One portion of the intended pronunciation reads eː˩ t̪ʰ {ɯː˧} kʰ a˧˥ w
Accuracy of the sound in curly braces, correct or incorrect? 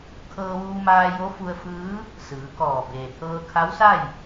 incorrect